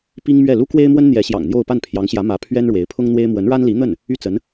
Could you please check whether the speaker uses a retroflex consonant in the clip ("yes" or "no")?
yes